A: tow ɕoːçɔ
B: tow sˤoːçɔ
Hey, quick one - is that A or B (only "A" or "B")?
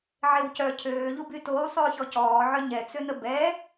B